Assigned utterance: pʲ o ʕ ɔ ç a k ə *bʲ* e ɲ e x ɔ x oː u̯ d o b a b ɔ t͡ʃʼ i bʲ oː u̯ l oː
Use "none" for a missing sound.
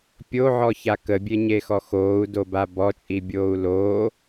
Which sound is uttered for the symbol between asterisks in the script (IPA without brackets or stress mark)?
bʲ